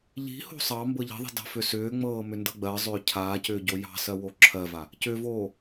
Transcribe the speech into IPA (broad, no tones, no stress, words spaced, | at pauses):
ʎi̤ho̤ sˤɑmbɤ ʎi̤ðˤi̤ dɑ̤fʏsʏːŋ͡mɤː mʏndɤɡ͡bɜzˤʏː cʰaːcʏː ɟojɑ̤sɜ woǁʰɜva | cʏvoː